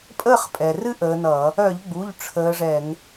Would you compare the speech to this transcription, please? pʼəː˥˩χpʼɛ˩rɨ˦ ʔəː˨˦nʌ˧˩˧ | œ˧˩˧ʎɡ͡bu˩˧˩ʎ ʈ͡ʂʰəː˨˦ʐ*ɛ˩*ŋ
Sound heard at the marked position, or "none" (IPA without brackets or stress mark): ɛ˧˩˧